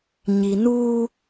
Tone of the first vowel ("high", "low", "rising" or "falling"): low